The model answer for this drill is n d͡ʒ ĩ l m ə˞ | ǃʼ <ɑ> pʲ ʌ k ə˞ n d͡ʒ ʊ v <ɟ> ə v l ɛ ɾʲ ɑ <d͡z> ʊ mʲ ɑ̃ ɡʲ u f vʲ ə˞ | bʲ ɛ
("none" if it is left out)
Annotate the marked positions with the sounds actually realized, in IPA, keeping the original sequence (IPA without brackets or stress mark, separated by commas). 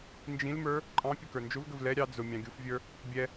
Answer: ɑ̃, ɡ, d͡z